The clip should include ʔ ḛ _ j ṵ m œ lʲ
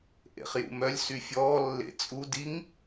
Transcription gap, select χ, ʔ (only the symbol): χ